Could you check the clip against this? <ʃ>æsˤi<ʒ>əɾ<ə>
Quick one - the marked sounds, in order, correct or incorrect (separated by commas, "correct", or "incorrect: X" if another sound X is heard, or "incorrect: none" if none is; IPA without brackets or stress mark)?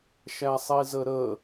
correct, incorrect: z, correct